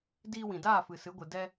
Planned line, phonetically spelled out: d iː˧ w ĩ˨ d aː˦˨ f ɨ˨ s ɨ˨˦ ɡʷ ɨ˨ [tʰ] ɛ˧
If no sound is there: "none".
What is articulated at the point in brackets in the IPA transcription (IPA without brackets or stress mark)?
d